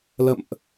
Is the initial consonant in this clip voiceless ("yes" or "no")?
no